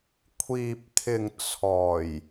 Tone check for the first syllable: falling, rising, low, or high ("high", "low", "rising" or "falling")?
low